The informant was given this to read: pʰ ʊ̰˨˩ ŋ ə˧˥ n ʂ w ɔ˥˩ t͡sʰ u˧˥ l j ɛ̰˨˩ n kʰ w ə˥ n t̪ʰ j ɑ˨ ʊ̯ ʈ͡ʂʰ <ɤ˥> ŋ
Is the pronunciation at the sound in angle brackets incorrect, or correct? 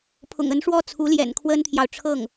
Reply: incorrect